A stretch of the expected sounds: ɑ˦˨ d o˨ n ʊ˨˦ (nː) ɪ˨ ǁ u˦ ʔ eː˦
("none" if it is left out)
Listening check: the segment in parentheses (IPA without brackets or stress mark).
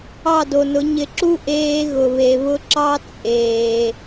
ɲ